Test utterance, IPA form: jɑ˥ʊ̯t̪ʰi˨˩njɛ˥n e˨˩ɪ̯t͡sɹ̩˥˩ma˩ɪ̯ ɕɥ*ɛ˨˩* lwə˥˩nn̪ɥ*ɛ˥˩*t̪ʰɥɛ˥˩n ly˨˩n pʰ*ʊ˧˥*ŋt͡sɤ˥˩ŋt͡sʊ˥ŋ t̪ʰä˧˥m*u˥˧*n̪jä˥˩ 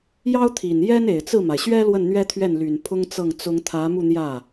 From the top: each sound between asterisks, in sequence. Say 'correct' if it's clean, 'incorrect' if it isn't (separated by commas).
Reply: incorrect, incorrect, incorrect, correct